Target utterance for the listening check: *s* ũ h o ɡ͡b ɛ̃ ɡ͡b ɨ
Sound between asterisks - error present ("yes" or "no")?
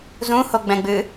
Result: yes